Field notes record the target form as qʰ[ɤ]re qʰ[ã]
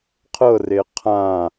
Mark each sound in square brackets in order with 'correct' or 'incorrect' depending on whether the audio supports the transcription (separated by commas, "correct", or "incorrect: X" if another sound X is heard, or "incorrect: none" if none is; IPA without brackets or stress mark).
correct, correct